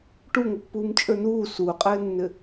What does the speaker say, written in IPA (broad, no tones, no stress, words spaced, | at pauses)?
ʈuŋəpːuːmt͡ʃʼə˞ nuː suːqʼɘːnːɘ